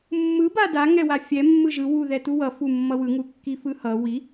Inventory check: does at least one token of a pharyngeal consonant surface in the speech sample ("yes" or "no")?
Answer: no